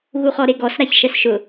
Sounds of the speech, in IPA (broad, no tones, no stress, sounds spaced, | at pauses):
ɣ u χ ɔ ɾ e ɡ ɔ s ɾ a ç ʃ ɛ s ʃ ʊ